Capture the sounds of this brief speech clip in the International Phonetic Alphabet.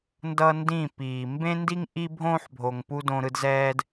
n d ʌ˦ n d ĩ˦˨ p iː˨ m b ẽ˦ n d i˦ ŋ ʔ i˦ bʱ õː˦ ħ bʱ o˨ ŋ p u˦ d õ˧ ɾ ɯ˧ d z ɛː˦ d

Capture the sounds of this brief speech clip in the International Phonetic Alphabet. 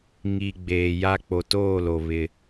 ŋ i˨ ɡ͡b eː˨ j a˦ k͡p o˨ t oː˦˨ l o˨ β ɪ˦

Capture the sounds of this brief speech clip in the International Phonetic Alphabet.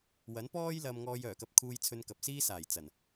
w ɐ˨˥ n p ɔː˥ j l ɐ˧ m ŋ ɔː˧ j œː˨˩ k ɐ˧ p̚ kʰ uː˧ j t͡sʰ ɵ˧ n k ɐ˨ p̚ s iː˥ s aː˨˩ j t͡s ɐ˨˩ n

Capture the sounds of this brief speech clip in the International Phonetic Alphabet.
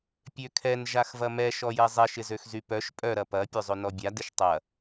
pʲ ø kʰ ɛ n ʒ a x v ɐ m ɛ ʃ ɔ j ɛ zˤ ɛ ʃ ɪ z ø x z y p œ ʃ pʼ œ ɾ ɐ p ɐ pʲ ø zˤ ø n ɔ bʲ a d ɪ ʃ tˤ ɐ

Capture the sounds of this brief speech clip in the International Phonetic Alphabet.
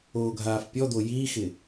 oː ɡʱ aː f pʲ ɔ d̪ o j iː x ɪ

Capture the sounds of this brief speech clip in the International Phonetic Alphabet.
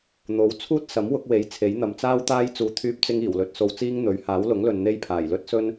n̪ o˨˥ w t͡sʰ uː˥ t̚ s ɐ˨˥ m w ʊ˨˥ k̚ w e˨˧ j t͡sʰ e˨˥ j n̪ ɐ˨ m t͡s aː˥ w t̪ aː˥ j t͡s uː˧ t̪ʰ yː˥ p̚ t͡s ɪ˥ ŋ iː˨˩ w l ɵ˧ t̚ s o˧ w t͡s iː˥ ŋ n̪ ɵ˨˥ ɥ h aː˨˥ w l ʊ˨˥ ŋ l ɵ˨ n n̪ e˥ j pʰ aː˨˩ j l ɵ˥ t̚ s ɵ˥ n

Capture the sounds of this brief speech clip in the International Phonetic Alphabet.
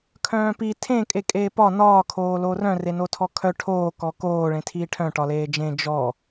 kʰ œ̃ː p i tʰ ẽ kʼ e kʼ eː p ɒ n ɒː kʰ oː l o r œ̃ r e n o tʰ ɔ kʰ œ ʈʰ oː k ɔ k oː ɭ ẽ tʰ iː ʈʰ œ̃ ʈ ɒ l eː d͡ʒ ẽ d͡ʒ ɔ

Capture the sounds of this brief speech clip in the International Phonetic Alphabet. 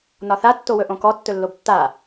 n ɒ θ a tː o w ɵ ʔ õ k ɔ tː ɵ lː o b tː a

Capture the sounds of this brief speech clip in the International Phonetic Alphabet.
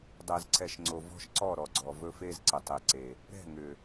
dˤ ɛ˨ z ǀ ɛ˨ ʃ ŋ͡ǀ o˨ v ɔ̤˦ ʃ ǀ ɔ˦˨ ɾ ɔ˨ ɡ͡ǀ ɔ˨ v ɵ˦ f e˦ z ǀ ɘ˨ tˤ e˨ ǀ e˨ | ɾ ɛ̤˦˨ ŋ ʏ˨

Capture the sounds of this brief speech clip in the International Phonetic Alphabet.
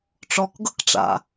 ʈ͡ʂ ɔ k ɡ ɤ k ʈ͡ʂ a̰

